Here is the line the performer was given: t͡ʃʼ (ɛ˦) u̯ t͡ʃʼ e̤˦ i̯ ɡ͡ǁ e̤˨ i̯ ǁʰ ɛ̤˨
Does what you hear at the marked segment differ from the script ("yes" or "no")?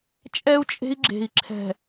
no